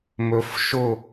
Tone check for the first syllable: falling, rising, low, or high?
rising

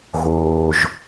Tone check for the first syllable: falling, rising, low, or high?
low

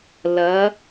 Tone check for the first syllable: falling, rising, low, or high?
rising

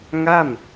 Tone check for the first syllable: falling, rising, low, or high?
falling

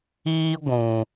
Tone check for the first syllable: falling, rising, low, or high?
high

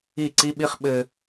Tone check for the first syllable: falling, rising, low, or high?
falling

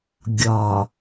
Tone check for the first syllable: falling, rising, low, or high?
low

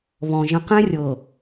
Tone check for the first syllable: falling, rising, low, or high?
low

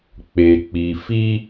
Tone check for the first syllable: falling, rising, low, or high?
low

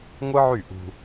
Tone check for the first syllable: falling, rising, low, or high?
high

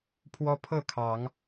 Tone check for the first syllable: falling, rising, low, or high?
high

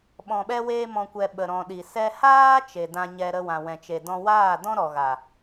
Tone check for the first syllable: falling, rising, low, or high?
low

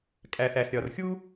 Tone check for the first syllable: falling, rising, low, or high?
low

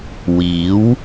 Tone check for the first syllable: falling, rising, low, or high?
rising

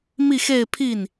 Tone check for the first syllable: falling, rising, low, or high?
falling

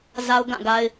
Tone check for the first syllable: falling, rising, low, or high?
high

